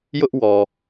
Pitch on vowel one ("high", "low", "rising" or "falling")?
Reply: high